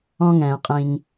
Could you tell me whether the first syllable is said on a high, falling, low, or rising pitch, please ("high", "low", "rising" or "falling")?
high